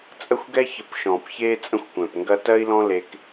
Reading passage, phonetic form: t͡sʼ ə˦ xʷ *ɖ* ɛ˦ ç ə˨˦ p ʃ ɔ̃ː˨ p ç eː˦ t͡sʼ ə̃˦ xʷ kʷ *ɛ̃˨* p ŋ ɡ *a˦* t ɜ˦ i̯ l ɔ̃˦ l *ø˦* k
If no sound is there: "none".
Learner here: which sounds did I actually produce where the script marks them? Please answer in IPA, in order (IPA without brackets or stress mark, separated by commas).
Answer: ɡ, ɛ̃˨, ɐ˦, e˦